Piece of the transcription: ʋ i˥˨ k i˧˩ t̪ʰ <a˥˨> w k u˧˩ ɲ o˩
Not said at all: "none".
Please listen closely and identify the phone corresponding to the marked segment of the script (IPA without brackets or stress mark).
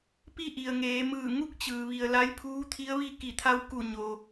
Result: a˧